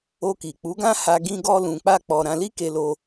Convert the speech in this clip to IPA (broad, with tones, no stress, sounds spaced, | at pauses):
o˧ k i˨ k͡p u˨˦ ɡ ã˦ h a˧ ɡ ĩ˦ ɡ ɔ˦ l ũ˧ k͡p a˦ k͡p ɔ˧ ɾ ã˧ l i˦ k e˧ l o˧